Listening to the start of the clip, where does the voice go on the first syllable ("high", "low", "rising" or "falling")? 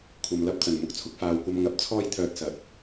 low